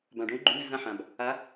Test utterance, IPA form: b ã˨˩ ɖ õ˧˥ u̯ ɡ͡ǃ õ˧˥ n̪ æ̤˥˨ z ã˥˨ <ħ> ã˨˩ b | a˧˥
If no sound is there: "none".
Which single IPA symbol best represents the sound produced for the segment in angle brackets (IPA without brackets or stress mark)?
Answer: ħ